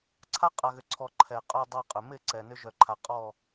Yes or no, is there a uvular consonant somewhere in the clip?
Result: yes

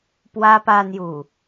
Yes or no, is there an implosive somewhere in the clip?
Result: no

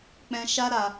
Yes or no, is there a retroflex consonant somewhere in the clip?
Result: no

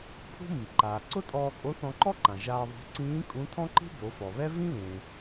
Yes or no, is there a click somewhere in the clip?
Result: yes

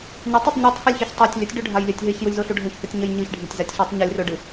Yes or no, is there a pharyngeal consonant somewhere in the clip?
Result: no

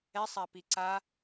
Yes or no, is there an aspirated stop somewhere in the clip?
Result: no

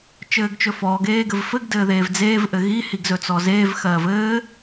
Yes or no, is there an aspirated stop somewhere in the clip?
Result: no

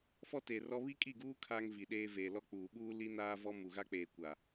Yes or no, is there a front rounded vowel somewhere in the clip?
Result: no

